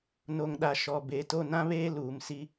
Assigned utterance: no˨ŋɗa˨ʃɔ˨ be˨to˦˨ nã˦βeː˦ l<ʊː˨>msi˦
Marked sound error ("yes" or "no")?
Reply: yes